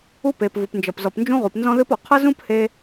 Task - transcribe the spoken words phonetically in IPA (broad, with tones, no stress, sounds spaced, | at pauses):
u˥ p e˩ p v u˩ p n d͡ʒ ʌ˩ p z ɔ˩ p n d͡ʒ ũ˥ ʁ u˩ p n z ɔ̃˥ ð ɨ˥ p ɔ˩ qʰ ʌ˥ z ũ˥ p h e˥